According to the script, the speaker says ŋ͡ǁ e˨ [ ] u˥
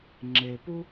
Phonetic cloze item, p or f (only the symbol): p